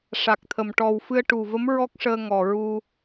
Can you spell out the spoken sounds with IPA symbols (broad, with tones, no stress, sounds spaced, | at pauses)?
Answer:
ʂ a˨˩ k̚ t̪ʰ ə˨˩ m ʈ ɔ˨˩ w f ɨ˧ ə̯ ʈ u˨˩ v ə˧˥ m ɹ ɔ˦˥ k̚ ʂ əː˧ ŋ ɔ˨˩ ɹ u˧